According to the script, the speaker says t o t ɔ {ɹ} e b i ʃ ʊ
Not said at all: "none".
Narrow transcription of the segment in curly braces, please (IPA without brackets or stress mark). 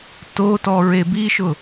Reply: ɹ